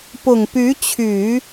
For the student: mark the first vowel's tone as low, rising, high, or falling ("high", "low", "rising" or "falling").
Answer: low